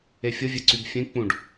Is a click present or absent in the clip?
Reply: present